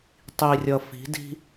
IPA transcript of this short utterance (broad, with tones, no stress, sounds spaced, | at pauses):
tˤ i˨ rʲ ʌ˨ f i̤˨˦ d i̤˦